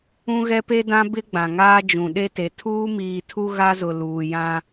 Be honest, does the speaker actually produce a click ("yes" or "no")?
no